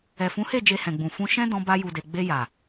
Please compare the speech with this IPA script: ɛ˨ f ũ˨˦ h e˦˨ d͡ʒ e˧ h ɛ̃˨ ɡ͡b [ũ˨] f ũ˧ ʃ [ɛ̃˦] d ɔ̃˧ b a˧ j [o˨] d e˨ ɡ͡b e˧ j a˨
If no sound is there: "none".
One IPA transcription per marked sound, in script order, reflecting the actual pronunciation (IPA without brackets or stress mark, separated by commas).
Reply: ũ˨, ɛ̃˦, u˨